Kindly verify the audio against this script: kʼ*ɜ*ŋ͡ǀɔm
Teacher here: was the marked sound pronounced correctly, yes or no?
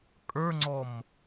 no